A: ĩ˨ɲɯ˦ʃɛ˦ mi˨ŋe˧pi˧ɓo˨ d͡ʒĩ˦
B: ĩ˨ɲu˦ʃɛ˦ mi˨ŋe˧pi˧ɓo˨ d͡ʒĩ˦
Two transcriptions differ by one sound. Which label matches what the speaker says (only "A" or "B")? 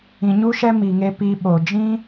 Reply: B